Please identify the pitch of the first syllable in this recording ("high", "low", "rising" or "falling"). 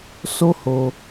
high